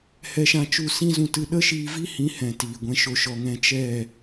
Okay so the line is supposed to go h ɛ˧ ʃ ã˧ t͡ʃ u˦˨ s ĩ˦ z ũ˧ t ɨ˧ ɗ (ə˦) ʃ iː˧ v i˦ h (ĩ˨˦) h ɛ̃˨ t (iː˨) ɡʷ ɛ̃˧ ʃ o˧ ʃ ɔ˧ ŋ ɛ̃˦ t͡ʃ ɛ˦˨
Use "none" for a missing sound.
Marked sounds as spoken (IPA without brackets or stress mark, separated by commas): ə˦, ĩ˨˦, iː˨